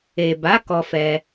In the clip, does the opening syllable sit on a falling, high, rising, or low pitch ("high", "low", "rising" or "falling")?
low